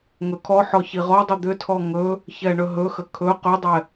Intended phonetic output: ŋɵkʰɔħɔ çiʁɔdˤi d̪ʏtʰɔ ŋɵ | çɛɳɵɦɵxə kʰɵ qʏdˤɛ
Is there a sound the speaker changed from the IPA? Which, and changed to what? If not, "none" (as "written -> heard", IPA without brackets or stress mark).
none